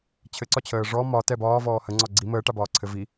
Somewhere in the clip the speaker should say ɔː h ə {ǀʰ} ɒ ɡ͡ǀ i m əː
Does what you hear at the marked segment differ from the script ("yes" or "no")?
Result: yes